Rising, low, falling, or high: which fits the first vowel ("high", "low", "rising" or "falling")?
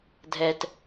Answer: low